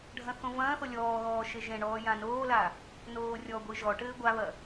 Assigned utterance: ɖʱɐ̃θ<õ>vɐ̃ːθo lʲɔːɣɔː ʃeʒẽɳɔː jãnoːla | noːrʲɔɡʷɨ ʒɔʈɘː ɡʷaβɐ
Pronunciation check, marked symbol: correct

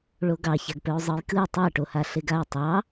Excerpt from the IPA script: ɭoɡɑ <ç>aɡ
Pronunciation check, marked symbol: correct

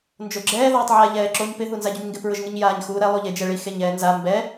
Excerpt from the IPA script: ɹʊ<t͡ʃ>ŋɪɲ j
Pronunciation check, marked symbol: incorrect: ʒ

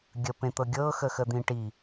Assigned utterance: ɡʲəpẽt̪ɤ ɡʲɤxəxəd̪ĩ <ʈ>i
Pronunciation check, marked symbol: correct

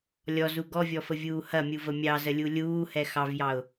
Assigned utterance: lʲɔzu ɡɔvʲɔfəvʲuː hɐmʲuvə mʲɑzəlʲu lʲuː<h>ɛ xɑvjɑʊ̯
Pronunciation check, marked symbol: correct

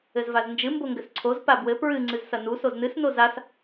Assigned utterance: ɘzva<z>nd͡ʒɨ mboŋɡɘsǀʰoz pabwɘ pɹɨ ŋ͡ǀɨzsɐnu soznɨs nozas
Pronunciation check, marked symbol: correct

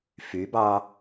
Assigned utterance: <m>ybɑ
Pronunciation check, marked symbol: incorrect: f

